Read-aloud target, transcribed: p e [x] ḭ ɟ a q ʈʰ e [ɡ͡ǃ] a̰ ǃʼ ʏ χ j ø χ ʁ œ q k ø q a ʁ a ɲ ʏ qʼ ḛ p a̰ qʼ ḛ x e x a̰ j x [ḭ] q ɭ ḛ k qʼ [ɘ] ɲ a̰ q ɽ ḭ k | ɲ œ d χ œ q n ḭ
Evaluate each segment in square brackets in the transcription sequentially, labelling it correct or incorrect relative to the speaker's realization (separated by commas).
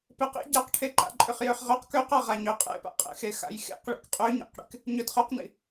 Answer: incorrect, incorrect, incorrect, incorrect